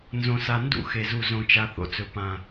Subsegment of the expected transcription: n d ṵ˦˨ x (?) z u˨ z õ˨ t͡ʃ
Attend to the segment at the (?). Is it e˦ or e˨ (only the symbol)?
e˨